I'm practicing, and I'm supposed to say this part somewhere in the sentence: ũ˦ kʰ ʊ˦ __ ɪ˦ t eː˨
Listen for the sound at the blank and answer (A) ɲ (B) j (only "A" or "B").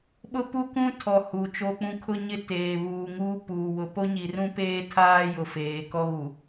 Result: A